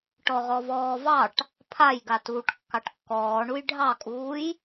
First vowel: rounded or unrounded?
rounded